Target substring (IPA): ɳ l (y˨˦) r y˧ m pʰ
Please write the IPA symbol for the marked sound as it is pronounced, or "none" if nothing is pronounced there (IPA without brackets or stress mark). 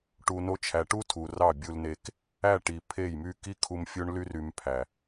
y˦